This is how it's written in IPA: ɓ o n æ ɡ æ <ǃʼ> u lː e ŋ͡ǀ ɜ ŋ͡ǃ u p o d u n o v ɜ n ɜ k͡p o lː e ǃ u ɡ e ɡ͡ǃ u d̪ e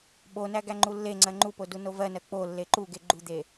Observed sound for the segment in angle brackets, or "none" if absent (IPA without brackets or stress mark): ŋ͡ǃ